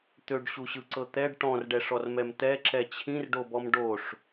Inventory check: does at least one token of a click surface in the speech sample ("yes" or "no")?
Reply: yes